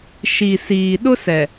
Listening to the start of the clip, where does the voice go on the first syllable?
low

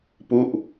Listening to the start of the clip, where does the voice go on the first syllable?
falling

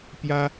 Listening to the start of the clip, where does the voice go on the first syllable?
high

